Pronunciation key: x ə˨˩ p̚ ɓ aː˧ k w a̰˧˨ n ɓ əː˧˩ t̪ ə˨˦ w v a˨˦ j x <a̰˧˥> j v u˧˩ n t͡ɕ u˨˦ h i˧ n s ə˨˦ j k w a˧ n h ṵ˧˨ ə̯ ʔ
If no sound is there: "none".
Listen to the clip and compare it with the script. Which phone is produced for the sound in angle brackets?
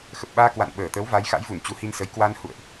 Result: a̰˧˥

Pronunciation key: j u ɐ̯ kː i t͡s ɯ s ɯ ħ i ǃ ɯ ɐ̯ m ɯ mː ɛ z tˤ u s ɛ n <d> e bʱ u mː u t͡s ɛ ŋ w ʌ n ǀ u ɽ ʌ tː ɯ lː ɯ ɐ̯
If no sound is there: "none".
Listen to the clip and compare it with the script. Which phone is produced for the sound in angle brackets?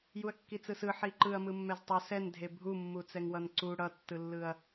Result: dʱ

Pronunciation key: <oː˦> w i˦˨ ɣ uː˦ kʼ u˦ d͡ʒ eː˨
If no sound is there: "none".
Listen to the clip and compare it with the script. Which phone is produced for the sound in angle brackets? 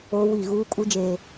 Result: oː˦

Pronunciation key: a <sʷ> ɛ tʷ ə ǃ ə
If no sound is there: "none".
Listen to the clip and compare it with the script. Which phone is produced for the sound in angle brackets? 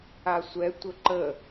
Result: sʷ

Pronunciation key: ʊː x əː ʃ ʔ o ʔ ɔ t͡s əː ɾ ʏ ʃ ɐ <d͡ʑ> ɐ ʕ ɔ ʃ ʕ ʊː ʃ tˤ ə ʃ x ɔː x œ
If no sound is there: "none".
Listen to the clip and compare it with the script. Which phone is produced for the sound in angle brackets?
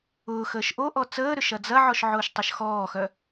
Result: d͡z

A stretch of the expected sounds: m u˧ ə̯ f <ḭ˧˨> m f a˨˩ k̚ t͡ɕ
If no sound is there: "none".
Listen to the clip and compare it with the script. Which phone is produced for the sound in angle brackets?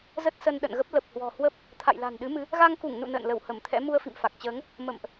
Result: ḭ˧˨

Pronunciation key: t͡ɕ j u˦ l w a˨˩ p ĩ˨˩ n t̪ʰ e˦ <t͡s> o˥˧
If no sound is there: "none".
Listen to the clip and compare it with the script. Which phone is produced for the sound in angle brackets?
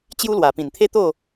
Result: t̪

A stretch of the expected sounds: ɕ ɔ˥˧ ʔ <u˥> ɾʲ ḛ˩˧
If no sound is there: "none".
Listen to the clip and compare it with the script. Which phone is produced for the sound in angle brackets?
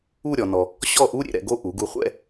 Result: u˥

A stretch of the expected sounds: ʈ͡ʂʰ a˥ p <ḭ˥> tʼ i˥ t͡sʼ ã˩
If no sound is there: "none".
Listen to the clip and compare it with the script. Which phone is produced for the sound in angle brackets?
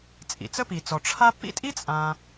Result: ḭ˥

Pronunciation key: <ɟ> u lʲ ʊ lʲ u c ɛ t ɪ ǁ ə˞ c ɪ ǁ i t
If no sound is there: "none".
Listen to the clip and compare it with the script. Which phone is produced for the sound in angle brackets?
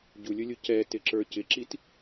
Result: ɟ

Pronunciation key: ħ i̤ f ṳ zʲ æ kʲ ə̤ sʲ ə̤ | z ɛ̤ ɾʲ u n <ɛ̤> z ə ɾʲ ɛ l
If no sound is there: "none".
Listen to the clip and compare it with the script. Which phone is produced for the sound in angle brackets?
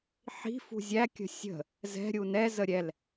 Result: ɛ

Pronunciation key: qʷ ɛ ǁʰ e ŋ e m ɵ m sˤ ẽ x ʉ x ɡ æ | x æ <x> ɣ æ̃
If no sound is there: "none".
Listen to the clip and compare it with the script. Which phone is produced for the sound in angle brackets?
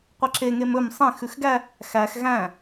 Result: x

